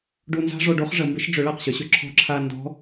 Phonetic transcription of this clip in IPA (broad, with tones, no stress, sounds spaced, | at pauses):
ɖ u˧ n z a̤˥ ʐ o˧ ɖ o˧˥ χ ʐ ə˩˧ m b ɪ˧˥ ʃ ɖ͡ʐ ʏ˩˧ ɭ a˩ q ɕ ə˩˧ ɕ ʏ˩ ǁʰ ɔ̤˧ ǁʰ a˧ n d ɔ̤˧˥